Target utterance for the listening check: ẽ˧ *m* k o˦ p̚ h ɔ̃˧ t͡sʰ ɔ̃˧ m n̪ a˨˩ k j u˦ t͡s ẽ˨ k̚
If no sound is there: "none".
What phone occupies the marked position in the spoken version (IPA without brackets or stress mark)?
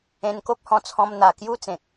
n